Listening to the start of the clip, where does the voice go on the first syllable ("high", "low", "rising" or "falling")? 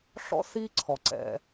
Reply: high